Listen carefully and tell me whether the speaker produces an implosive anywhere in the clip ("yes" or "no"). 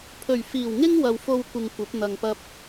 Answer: no